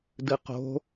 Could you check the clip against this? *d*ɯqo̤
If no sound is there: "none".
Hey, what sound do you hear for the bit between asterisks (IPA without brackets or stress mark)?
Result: d